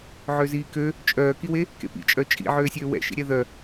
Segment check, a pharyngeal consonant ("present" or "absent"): present